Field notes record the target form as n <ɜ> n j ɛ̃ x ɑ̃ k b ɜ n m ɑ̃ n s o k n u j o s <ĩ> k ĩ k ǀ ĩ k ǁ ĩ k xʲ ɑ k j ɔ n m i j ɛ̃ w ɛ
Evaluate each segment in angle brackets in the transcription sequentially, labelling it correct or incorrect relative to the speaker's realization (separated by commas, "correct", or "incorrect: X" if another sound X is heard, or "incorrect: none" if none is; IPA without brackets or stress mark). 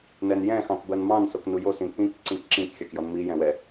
incorrect: ɛ, correct